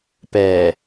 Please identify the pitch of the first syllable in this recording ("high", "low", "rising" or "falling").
low